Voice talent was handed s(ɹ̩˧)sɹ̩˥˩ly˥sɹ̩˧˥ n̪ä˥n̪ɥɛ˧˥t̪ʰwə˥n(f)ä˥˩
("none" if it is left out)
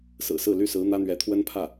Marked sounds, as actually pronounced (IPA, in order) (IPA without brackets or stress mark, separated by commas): ɹ̩˨˩, pʰ